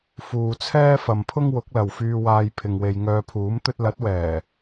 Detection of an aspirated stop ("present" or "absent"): present